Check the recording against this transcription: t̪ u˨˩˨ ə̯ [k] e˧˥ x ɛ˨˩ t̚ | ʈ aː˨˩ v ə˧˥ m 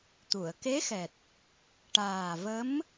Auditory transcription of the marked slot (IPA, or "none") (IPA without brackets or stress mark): k